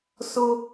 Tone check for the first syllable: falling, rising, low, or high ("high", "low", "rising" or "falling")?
high